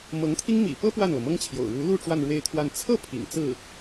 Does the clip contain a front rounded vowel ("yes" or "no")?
no